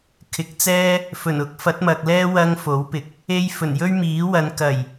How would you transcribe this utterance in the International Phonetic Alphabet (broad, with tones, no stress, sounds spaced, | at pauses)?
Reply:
kʰ ɪ˨ k̚ t͡s ɛː˥ | f ɵ˨˩ n ʊ˧ k̚ f ɐ˨˥ t̚ m ɐ˨ k̚ l ɛː˥ w ɐ˥ ŋ f o˨˥ w p ɪ˨ k̚ | e˧ j f ɵ˨˩ n j ɵ˥ ɥ m iː˨˥ w ɐ˨˧ n k ɐ˨˩ j